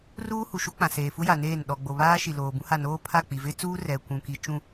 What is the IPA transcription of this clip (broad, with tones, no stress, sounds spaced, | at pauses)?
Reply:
r uː˦ h u˨ ʃ u˦ k͡p ã˨ s eː˨ f u˦ j a˨ n eː˦˨ n ɗ ɔ˨ ɡ͡b o˨ β aː˦ ʃ i˨ l oː˨ b ũ˦ h a˦˨ n oː˦ pʰ a˦˨ k͡p i˨ v ɪ˦ t͡s uː˦ r ɛ˨ kʷ ũ˨ k i˨ t͡ʃ ũ˦˨